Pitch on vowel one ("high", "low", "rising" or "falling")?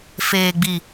low